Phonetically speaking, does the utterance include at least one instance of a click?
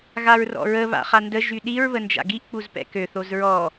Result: no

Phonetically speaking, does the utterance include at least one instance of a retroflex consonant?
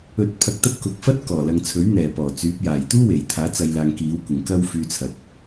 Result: no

